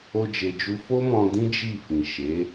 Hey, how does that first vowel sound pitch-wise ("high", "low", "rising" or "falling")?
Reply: high